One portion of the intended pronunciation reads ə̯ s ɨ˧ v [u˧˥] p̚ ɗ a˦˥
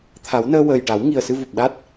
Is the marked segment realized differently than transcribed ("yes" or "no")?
yes